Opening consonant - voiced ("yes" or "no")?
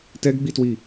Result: no